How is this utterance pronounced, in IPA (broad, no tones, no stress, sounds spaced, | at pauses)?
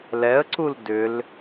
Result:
l ɛ ə̯ ǀ u l d ʏ l